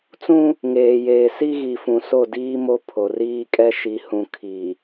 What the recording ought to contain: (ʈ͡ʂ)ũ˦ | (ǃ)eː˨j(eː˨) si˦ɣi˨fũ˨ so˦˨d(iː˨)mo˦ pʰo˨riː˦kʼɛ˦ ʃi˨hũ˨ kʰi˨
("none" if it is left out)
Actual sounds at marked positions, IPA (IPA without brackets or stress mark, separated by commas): t͡s, ŋ, eː˨, iː˦